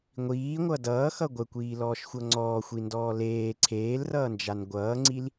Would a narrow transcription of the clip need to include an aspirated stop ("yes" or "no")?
yes